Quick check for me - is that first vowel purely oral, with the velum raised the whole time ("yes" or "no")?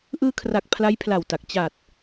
yes